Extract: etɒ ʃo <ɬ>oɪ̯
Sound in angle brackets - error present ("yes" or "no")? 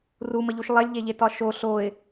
no